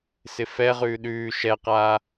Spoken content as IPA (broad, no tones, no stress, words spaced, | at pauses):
sɪfɛʁʉː ɗʉː ʃɛqaː